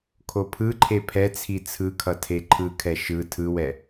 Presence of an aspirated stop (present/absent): present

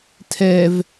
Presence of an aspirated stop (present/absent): present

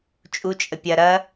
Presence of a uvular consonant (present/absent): absent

